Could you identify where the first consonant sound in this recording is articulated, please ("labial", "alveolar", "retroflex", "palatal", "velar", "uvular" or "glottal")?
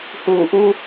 glottal